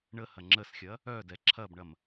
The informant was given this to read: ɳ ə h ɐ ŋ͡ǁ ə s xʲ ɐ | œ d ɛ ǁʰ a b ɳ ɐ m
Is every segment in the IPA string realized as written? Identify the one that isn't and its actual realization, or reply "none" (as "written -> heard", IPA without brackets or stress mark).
a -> ɐ